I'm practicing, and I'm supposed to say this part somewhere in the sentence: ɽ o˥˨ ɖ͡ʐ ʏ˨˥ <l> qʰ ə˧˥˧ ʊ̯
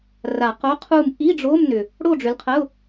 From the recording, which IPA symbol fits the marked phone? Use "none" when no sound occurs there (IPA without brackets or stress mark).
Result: l